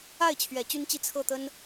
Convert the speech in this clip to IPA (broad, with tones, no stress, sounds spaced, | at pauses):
a˥˩ ɪ̯ t͡ɕʰ ɥ ɛ˨˩ t͡ɕ y˥ n t͡ɕ i˥˧ t͡sʰ ɤ˥˩ t̪ ə˥ n